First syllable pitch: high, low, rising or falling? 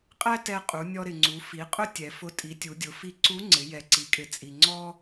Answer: high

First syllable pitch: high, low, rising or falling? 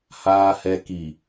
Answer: low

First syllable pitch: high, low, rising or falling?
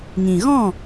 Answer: low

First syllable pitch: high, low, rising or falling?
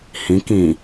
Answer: rising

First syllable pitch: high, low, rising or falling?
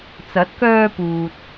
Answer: rising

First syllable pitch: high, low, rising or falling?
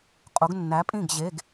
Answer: rising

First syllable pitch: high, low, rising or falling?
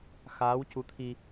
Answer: rising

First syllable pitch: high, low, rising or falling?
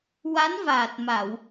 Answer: rising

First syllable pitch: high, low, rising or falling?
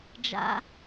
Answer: low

